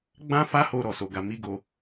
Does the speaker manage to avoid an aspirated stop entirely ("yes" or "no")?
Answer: yes